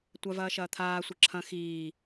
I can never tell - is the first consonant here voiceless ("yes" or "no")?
yes